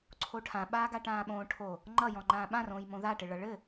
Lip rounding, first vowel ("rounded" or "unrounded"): rounded